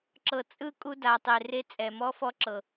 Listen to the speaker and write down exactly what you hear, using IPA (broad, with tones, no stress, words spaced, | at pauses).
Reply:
ǁɤ˨t͡sʼɯ˦ kʼu˦da˨tˤe˨ re˦t͡sʼɛ˨ mɔ˦fɔ˦ǁɤ˨